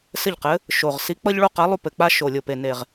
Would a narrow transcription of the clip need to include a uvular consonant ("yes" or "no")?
yes